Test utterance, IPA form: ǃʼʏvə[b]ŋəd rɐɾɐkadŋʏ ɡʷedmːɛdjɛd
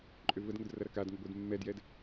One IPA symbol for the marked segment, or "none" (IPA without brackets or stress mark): d